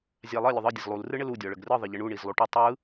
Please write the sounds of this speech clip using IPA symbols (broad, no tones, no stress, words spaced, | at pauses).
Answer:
zʲalˠɘ lʲʊðˤɯ dʲəzlˠul rɯɳɘlu dʲɔɭəɡrɯ ðˤɘʎɘɳu ɳizlˠuʈə tˤɯ